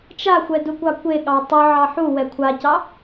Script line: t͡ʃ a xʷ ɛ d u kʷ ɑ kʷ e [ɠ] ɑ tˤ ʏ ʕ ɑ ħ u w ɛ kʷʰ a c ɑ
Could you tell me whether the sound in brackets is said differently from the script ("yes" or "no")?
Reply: no